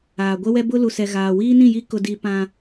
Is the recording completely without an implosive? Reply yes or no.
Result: yes